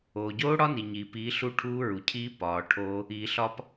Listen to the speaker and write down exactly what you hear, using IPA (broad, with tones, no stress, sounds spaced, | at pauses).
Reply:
oː˩ ɟ oː˦˥ ɽ ɒ˦˥ n i˩ ɲ iː˩ p iː˨˦ ɬ u˦˥ ʈʰ uː˦˥ ɹ u˩ cʰ iː˦˥ p ɒː˩ ʈʰ oː˦˥ | iː˩ ɬ ɒ˦˥ p